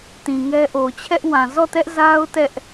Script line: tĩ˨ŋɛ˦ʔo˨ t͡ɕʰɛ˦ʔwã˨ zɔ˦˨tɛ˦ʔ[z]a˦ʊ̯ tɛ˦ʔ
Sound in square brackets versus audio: correct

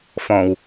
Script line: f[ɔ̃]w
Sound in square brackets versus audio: correct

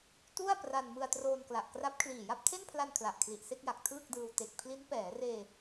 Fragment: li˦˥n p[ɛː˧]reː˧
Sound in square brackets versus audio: incorrect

